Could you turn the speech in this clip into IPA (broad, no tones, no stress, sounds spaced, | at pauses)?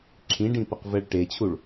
ǁʰ ĩ ɖ ĩ p ə q v ɛ ɭ ʈ e t͡ɕʰ u ɭ